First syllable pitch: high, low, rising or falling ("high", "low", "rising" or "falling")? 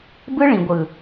high